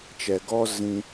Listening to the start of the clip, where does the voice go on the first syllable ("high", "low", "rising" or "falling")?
low